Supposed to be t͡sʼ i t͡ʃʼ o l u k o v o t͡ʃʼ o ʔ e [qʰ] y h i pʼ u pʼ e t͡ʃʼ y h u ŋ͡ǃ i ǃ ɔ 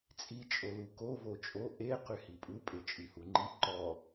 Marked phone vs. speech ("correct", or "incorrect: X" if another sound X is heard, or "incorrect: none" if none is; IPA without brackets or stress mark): incorrect: q